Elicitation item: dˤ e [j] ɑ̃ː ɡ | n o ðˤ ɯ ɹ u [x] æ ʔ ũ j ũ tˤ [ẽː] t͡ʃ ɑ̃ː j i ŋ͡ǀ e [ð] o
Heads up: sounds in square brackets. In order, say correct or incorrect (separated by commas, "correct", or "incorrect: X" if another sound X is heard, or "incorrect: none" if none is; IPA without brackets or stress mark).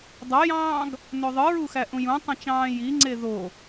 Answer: correct, correct, incorrect: ẽ, correct